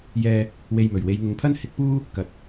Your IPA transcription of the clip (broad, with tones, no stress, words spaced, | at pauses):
jɛː˧ | we˧jmɵ˨˩ɥ we˨˧jŋʊ˨˧ŋpʰɐ˥n hɪ˨˥k̚puː˥ | kɐ˨t̚